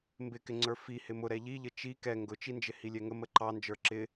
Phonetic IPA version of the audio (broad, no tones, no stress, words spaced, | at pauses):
mbɪkɪŋ͡ǀə˞ fi hɪmʊ ɾɛʎiʎə t͡ʃi kɛ ŋɡʊt͡ʃind͡ʒɪ hilʲɛŋə məǃɑ nd͡ʒə˞ǁɪ